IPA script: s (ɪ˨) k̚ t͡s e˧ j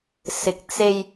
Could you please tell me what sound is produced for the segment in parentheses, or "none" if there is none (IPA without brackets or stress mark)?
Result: ɪ˨